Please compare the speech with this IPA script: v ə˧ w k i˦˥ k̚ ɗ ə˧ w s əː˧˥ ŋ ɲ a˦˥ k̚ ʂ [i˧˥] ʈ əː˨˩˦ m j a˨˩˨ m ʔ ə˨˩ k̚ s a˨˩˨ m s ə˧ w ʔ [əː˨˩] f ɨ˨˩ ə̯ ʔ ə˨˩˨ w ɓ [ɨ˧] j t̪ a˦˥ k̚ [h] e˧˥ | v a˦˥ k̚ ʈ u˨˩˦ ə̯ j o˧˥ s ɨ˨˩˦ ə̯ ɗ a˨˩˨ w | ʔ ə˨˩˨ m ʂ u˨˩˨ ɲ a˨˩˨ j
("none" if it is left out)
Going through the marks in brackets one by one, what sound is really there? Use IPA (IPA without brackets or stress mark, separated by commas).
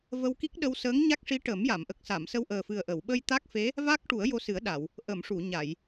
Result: i˧˥, əː˨˩, ə˧, f